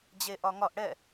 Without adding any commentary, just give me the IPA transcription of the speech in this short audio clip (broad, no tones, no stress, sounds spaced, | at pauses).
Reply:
d͡ʑ e ʔ ɒ ŋ ɒ ʔ ɽ ɛ